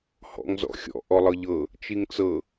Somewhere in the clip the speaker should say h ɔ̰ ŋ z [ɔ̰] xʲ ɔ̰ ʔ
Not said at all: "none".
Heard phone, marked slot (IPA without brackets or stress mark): ɔ̰